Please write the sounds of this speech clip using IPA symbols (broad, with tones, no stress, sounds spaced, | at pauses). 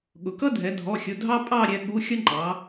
ɠ ʊ˩ k ʌ˦ dʱ ɛ˩˧ dʱ ɔ˩˧˩ xʲ ʊ˩˧˩ dʱ ɑ˦ pʼ ɑ˦˨ ɾʲ ɛ˩˧ ɠ u˩˧˩ xʲ ʌ˦ ŋ͡ǃ ɑ˩˧